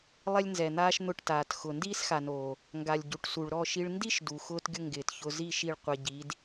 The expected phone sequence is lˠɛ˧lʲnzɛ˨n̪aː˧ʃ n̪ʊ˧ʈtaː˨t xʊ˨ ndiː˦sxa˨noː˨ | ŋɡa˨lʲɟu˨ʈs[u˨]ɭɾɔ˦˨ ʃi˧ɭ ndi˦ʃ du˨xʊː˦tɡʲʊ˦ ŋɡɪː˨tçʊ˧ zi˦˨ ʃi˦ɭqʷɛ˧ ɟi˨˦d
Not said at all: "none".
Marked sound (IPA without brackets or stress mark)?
u˨